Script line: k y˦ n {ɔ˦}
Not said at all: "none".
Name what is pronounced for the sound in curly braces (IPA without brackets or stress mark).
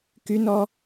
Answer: ɔ˦